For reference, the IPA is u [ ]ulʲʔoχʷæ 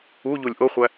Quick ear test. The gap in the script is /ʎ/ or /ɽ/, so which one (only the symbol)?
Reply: ʎ